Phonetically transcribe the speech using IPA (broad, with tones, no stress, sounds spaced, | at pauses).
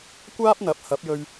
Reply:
kʷ aː˥ p̚ n̪ ɐ˨˥ p̚ h ɐ˨˥ p̚ j ɵ˧ ɥ